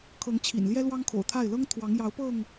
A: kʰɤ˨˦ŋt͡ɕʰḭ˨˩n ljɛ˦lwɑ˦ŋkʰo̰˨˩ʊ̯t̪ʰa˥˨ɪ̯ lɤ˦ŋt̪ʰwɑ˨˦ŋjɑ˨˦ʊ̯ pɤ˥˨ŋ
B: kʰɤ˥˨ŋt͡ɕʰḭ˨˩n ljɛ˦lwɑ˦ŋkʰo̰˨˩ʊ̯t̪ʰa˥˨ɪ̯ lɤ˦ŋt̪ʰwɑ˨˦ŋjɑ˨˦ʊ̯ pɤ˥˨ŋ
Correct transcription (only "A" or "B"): A